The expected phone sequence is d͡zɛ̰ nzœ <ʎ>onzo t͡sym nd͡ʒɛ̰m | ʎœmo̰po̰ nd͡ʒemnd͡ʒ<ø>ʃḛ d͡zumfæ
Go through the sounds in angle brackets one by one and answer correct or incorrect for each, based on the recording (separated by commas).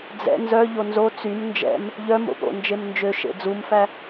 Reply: correct, correct